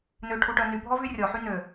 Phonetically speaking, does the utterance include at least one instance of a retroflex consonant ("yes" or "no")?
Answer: yes